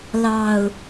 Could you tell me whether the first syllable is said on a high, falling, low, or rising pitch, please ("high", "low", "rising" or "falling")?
low